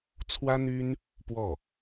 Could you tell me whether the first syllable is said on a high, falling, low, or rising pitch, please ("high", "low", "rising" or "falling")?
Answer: high